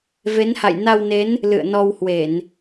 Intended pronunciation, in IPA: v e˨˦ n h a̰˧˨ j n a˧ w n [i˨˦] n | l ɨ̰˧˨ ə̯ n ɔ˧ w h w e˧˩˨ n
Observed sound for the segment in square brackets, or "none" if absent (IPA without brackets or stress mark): e˨˦